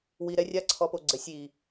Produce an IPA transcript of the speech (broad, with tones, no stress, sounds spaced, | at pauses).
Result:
w i˧ ɾ ɛ˦ rʲ a˦ ǀʰ ɔ˧ p o˧ ɡ͡ǀ ɛ˨˦ sʲ i˨